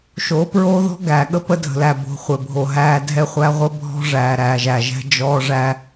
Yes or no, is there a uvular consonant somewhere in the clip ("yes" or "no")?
yes